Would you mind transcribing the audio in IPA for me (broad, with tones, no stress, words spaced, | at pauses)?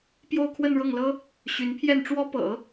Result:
pjo˥˧ʊ̯kʰwə˥˧nɻɤ˥˩ŋlɤ˥ | ɕy˧˥npʰjɛ˥˩nʈ͡ʂwɔ˥pɤ̰˨˩˦